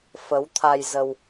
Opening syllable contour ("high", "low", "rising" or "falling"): rising